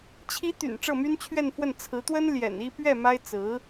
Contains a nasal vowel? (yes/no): no